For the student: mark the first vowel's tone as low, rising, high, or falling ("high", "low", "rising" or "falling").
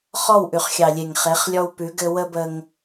falling